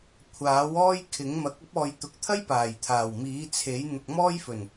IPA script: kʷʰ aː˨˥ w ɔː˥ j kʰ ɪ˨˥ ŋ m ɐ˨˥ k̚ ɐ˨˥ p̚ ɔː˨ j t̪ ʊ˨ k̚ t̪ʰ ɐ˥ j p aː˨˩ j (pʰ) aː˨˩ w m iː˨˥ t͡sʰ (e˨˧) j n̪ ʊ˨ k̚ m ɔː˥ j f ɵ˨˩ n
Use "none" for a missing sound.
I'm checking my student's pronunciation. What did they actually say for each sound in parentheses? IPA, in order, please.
t̪ʰ, e˨˥

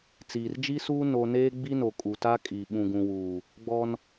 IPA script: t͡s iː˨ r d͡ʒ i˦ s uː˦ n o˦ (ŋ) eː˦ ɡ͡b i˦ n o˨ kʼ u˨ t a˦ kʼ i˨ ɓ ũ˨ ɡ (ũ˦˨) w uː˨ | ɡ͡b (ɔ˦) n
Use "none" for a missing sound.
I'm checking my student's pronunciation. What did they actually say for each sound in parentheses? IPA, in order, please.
n, ũ˨, ɔ˦

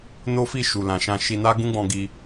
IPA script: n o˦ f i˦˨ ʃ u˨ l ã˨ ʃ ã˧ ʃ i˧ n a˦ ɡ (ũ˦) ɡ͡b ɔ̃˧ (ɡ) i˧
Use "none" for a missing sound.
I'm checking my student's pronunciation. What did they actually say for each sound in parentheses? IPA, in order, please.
ũ˦, ɡ

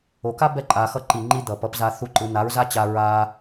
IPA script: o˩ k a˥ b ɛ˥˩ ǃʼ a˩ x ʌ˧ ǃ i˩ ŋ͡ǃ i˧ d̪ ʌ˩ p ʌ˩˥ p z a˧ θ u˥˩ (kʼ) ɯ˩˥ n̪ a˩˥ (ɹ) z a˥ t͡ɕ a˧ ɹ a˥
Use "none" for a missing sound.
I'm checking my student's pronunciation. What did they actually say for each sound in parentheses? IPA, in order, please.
ǃ, ɹ

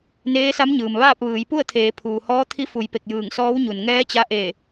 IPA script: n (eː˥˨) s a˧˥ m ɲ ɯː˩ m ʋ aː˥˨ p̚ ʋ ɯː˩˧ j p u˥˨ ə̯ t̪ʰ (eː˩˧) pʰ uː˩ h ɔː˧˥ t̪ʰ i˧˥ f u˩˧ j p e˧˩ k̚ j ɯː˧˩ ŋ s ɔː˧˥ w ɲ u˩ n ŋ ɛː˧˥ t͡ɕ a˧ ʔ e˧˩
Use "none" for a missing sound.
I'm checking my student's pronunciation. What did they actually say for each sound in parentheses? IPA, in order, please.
eː˧˥, eː˩˧

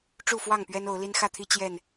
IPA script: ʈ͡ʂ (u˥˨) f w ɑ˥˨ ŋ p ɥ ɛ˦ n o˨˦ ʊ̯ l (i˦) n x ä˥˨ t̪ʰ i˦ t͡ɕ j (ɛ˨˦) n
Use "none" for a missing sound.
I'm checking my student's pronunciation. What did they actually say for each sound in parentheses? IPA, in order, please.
u˥˨, i˦, ɛ˥˨

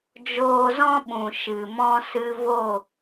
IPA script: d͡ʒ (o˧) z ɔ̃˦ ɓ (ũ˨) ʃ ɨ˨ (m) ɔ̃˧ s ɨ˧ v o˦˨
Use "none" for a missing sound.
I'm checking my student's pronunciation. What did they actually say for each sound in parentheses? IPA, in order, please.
oː˧, ũ˨, m

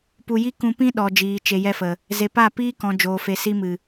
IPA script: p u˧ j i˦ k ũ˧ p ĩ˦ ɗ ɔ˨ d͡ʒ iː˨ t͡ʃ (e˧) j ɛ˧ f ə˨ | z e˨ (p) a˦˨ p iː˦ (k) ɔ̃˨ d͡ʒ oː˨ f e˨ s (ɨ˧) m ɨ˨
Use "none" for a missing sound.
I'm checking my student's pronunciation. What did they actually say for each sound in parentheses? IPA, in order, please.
e˨, p, k, i˧

